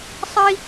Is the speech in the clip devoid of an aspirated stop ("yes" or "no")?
yes